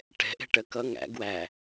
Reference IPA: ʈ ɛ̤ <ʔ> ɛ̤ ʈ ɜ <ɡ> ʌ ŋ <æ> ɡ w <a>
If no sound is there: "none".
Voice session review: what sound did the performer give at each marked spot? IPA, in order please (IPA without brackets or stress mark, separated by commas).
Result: ʔ, k, æ̰, æ